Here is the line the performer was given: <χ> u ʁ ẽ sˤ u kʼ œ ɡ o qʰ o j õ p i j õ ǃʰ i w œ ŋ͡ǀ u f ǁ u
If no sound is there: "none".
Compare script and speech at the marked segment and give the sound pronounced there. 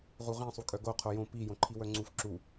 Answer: ʁ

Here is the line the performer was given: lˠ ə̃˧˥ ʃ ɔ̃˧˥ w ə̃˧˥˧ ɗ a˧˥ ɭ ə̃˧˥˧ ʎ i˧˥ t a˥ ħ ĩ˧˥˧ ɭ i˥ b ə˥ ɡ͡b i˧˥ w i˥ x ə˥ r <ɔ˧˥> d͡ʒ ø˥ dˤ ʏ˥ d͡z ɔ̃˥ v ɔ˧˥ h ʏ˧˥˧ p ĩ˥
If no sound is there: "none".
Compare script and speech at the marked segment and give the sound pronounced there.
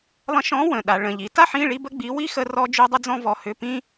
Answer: ɔ˥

